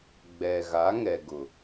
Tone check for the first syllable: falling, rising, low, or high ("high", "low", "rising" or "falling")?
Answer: low